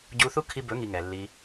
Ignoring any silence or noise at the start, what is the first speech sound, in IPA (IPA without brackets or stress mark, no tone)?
ɟ